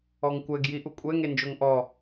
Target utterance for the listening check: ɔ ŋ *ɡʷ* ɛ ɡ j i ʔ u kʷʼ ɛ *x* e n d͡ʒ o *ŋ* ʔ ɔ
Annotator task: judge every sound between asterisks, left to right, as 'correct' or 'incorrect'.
incorrect: kʷ, incorrect: ŋ, correct

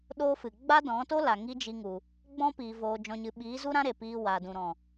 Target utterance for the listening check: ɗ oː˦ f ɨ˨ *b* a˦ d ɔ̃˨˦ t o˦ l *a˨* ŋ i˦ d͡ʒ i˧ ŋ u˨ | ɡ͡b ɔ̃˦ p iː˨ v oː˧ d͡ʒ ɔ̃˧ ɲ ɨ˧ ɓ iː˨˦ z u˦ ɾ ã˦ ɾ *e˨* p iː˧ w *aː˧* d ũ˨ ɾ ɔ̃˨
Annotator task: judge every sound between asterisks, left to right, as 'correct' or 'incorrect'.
incorrect: ɡ͡b, correct, correct, incorrect: aː˨

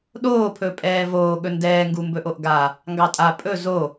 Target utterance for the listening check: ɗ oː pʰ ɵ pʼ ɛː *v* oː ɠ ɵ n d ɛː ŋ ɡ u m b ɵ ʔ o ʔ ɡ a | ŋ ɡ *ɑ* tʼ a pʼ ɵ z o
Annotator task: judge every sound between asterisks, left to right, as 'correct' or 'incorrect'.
correct, correct

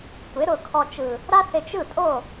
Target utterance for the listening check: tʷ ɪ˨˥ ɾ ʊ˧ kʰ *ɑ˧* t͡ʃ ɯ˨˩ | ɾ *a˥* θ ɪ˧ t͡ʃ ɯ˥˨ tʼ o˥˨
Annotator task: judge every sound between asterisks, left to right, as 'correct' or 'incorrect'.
incorrect: ɔ˧, correct

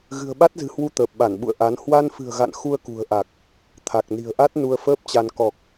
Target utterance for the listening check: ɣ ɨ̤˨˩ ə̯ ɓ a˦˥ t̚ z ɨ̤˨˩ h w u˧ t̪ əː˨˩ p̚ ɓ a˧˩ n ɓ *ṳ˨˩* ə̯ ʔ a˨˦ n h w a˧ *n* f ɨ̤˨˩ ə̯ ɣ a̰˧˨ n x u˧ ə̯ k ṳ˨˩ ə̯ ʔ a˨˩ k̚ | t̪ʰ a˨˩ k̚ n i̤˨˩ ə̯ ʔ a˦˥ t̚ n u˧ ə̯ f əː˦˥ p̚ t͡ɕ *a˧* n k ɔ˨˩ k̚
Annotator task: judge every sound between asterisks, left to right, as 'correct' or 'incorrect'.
incorrect: ṵ˧˨, correct, correct

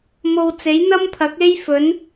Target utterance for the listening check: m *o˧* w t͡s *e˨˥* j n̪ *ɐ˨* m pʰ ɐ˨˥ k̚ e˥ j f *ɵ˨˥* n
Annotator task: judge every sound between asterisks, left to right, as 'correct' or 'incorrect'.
incorrect: o˨, correct, incorrect: ɐ˥, correct

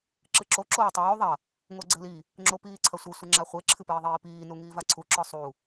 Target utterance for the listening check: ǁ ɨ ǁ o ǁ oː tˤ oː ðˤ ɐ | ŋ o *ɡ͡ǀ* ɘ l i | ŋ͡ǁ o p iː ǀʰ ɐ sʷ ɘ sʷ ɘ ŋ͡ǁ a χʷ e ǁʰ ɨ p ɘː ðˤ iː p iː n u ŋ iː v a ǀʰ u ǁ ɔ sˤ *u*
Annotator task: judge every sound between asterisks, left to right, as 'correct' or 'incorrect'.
correct, correct

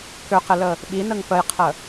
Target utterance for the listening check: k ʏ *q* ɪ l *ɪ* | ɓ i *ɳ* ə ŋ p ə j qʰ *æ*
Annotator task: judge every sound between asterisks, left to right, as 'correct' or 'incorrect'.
correct, incorrect: ə, incorrect: n, incorrect: ə

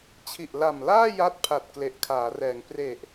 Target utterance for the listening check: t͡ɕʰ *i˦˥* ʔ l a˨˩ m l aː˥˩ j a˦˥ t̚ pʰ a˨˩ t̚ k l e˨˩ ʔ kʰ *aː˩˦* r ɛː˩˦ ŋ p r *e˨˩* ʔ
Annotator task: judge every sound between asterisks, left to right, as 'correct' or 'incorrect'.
incorrect: i˨˩, correct, correct

